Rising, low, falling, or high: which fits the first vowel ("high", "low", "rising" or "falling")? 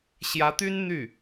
rising